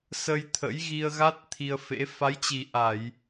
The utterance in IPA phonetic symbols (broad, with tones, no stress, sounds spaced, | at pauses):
s ə˧ j t̪ʰ ə̰˧˥ j ɣ i˧ ə̯ ɣ a˦˥ t̚ t̪ʰ i˧ ə̯ f ḛ˧˥ f a˨˦ j t͡ɕ i˨˩ ʔ a˧˩˨ j